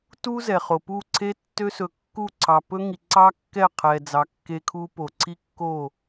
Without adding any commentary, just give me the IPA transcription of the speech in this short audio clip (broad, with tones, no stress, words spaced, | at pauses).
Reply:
tu˦ zɛ˨χo˨ pu˦˨ǀʰe˦ tːø˦ sɵ˨kːu˦˨ ǀʰɑ˨pɵ˦ŋi˨ǀɑ˦ kːɛ˦˨qʰɛ˨d͡zɑ˨ kːe˦kʰu˦po˨ ǀʰi˦kːo˦˨